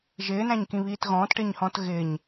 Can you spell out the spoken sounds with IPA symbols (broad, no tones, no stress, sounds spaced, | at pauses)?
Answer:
ʒ ɪː n æ̃ ɲ k ĩ β iː t ɣ ɔ̃ː t ʈ ɪː ɲ h ɔ̃ː t ɣ ɪː ɲ